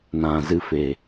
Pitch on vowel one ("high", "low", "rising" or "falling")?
low